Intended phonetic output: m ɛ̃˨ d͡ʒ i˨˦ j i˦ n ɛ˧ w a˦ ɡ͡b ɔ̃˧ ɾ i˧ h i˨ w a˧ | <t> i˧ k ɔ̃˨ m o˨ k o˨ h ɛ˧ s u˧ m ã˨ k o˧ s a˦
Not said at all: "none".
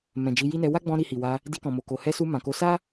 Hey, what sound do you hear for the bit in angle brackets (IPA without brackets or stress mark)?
d